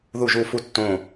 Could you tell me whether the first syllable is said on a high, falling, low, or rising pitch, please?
falling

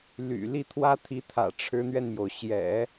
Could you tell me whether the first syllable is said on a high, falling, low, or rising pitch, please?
low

